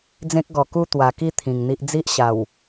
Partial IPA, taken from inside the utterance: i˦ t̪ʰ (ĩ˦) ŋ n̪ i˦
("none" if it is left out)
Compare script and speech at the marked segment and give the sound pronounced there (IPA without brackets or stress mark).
ĩ˨˩